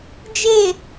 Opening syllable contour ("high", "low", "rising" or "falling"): falling